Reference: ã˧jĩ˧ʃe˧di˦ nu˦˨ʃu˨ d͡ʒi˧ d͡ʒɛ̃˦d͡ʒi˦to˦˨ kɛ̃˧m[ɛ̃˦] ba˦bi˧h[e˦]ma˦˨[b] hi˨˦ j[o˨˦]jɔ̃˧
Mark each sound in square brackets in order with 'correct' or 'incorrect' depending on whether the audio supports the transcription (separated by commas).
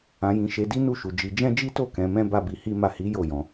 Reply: correct, incorrect, incorrect, incorrect